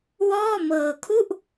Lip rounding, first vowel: rounded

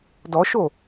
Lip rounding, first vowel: rounded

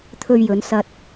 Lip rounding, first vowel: rounded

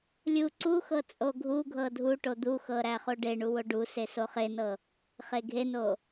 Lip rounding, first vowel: rounded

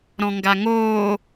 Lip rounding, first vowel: rounded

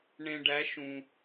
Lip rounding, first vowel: unrounded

